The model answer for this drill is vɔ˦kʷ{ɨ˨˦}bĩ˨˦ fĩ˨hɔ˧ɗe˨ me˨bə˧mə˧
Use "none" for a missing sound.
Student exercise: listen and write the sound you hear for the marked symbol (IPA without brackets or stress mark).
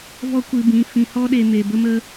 ɨ˧